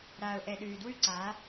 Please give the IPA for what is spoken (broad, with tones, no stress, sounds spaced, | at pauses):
ɾ aː˨ ʊ̯ ʔ ɛ˨ ɗ ʉː˨ d w ʉ˦ ǀ aː˨˦